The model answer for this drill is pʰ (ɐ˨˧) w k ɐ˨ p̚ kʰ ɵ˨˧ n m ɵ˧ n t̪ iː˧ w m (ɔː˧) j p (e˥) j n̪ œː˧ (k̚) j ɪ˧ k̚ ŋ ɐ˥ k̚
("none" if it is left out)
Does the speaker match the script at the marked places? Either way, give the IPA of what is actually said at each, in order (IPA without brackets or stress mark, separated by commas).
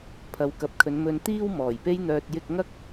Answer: ɐ˨˧, ɔː˨˩, e˥, t̚